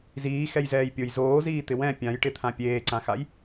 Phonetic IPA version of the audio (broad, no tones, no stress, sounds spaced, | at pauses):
z iː x ɛ j z ɛː j pʲ o j z oː z iː t̪ ɪ w ɛ̃ pʲ ã j ʈ ɪ t̪ʰ ã pʲ eː ǀ ã x a j